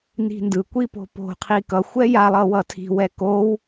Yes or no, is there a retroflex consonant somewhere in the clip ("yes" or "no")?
no